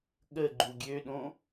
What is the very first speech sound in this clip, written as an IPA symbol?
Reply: ɠ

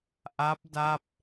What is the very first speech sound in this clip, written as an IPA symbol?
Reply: ʔ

